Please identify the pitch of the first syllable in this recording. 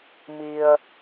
low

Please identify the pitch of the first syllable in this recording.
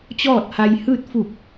falling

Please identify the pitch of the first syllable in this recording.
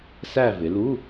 falling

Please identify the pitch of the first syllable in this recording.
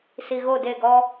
low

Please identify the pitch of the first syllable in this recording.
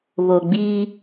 low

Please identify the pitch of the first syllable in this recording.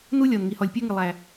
high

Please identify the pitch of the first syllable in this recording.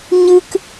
high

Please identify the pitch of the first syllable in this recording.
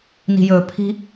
low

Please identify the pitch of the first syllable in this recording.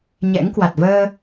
rising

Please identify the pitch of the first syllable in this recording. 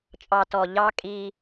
low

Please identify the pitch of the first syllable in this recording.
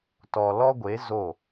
low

